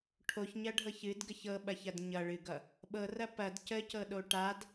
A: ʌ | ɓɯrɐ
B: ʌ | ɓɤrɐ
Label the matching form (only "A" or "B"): B